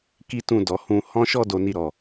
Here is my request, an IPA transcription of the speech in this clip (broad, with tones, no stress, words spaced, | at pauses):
ki˦tũ˦˨dɔ˨ hũ˧ hɔ̃˦ʃɔ˦ do˧ni˧ɾɔ˨